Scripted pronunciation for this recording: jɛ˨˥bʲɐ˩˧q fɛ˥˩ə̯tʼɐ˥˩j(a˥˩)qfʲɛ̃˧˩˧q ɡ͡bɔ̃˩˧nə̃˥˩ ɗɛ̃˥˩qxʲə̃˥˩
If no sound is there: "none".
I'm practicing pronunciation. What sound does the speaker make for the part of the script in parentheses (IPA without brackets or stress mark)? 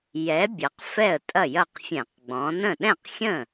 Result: ɐ˥˩